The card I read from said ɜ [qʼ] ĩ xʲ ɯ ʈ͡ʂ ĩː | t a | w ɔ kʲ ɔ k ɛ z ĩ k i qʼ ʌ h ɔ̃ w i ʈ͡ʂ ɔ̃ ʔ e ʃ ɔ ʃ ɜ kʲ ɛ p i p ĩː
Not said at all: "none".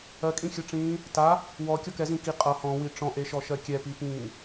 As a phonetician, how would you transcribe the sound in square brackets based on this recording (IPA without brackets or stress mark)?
kʼ